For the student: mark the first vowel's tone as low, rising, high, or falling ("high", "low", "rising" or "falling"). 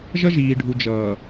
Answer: high